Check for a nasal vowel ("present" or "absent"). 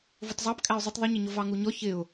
absent